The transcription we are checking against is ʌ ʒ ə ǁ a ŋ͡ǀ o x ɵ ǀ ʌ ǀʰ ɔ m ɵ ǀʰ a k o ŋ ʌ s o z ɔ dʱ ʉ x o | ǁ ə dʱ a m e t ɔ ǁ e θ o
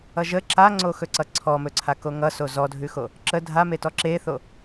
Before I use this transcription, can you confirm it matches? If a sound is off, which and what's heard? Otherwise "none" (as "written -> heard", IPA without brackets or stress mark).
none